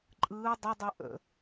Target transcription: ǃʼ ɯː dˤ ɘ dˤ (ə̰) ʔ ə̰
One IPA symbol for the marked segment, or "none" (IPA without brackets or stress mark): ə